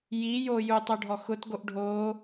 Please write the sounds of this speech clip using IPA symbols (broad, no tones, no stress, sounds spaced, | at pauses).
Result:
j i j o j u tˤ o ɖʱ ɔ x ʊ t ɡ o ʔ ɖʱ o